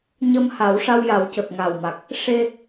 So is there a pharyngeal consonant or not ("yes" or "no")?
no